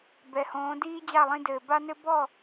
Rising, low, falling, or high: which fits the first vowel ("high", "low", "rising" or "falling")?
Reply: low